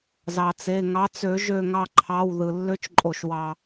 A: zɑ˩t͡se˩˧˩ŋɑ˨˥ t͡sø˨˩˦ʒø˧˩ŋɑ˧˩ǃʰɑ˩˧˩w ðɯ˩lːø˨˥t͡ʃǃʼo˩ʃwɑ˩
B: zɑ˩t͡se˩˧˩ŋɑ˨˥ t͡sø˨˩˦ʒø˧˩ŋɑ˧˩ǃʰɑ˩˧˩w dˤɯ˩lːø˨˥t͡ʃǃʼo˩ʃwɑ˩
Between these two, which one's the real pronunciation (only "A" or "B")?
A